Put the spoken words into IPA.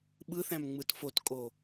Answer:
ɓɯθæ̃m ŋ͡mɯtfotkʼo

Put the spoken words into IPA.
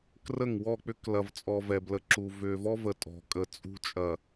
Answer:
krə˦˨ŋwɔ˦˨k͡pʏ˦k lɐ˨vt͡sʼɔ˨ vɛ˨blə˨ǁu˨ vʏ˨vɔ˦və˨ tʼɔ̤˨kʼə˨t͡sʼṳ˦ t͡ʃʼɐ˨

